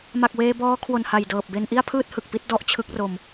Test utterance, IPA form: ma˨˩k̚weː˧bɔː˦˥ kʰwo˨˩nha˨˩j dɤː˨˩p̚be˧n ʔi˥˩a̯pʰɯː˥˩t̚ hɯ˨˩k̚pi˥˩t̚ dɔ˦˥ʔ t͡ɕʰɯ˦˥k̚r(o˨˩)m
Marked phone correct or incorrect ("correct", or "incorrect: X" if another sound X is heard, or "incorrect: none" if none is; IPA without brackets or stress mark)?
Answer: incorrect: o˧